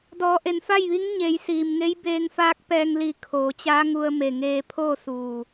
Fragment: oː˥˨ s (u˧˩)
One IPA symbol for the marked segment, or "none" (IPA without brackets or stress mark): uː˧˩